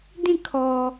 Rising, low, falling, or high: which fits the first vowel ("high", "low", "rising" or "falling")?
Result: falling